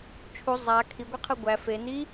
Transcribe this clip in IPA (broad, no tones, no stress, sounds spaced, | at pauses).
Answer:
t͡ʃʰ u zˤ a kʰ i ɡʷ i qʰ ɯ ɡʷ æ f e n i